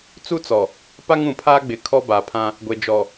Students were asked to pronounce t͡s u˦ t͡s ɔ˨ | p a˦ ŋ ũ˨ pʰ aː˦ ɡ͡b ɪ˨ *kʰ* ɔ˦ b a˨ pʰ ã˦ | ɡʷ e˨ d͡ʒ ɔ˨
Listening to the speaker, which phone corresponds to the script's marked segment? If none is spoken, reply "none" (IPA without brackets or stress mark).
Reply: kʰ